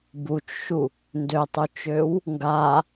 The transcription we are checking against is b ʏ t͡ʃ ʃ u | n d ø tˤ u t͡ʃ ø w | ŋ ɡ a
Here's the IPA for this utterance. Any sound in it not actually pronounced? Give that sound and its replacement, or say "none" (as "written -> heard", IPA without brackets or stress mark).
ʏ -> u